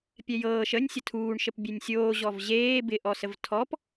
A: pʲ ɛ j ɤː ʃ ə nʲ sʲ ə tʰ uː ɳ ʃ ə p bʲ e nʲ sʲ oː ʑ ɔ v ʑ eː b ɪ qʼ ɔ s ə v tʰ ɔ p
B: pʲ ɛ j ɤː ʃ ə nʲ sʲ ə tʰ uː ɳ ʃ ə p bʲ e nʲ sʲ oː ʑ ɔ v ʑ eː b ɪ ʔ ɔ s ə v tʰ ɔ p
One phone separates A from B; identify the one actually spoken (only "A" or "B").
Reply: B